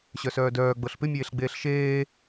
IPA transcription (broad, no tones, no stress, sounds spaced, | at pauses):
ɕ œ s œː d œː ɡ͡b ɤ ɬ p ɪ mʲ eː ɬ ɡ͡b eː ɬ ʃ eː